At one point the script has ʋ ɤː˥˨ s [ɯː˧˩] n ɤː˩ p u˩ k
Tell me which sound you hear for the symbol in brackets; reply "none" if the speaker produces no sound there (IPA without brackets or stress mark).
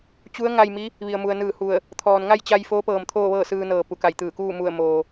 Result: ɯː˧